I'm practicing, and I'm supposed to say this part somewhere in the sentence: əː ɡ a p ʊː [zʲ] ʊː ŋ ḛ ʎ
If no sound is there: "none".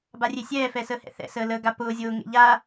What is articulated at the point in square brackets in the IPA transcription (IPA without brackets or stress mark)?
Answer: zʲ